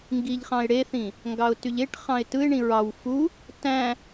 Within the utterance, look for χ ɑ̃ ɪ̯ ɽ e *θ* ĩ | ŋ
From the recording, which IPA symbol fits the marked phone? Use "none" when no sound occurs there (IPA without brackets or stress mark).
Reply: θ